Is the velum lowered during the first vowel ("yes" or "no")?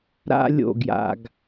no